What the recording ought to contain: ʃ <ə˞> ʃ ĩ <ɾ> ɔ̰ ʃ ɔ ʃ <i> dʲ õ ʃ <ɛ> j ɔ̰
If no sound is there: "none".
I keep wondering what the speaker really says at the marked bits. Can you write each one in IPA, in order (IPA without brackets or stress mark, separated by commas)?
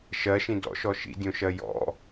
ɜ, d, ḭ, ɜ